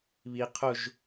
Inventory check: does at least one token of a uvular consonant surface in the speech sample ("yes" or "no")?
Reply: yes